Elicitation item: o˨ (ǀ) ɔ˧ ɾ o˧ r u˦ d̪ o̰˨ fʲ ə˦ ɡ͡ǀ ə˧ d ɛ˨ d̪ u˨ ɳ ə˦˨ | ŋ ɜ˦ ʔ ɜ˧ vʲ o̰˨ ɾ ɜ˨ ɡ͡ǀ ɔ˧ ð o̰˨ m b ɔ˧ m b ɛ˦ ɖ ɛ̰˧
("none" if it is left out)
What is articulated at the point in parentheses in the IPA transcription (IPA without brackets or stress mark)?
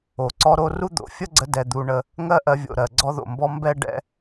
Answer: ǀ